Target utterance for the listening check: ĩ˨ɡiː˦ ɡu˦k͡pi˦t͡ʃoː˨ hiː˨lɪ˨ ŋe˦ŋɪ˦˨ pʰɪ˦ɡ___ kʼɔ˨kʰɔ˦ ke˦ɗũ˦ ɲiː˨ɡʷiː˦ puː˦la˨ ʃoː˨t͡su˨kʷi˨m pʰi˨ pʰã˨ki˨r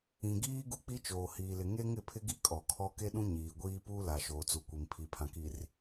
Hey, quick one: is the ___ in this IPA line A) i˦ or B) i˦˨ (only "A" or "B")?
A